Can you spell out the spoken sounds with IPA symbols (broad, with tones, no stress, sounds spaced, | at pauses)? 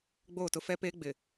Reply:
ɡ͡b oː˦˨ t ʊ˦ f ɛ˦ p eː˦ ɡ͡b ɪ˨